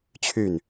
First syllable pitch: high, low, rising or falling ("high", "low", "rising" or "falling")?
falling